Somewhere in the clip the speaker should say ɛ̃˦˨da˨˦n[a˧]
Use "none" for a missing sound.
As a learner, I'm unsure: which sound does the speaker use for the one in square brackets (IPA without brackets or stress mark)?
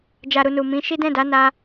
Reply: a˧